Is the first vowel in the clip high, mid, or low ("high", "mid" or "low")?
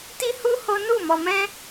high